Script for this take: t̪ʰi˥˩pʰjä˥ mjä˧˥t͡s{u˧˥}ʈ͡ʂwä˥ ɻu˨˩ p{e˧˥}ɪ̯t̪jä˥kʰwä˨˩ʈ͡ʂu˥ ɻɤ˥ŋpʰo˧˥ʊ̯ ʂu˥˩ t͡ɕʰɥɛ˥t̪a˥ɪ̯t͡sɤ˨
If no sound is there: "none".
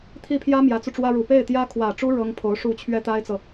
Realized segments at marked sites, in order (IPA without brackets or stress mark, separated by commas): u˧, e˥˩